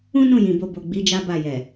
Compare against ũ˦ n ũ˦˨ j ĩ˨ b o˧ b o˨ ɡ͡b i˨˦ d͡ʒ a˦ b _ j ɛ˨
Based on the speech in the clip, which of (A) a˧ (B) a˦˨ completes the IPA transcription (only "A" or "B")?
B